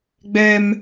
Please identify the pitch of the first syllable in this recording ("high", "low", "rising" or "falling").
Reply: high